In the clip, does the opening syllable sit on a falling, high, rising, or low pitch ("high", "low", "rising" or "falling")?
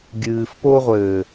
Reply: low